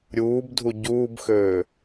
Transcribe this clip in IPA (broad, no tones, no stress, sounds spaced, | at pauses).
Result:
ɾʲ uː b dʱ u ɟ uː b x øː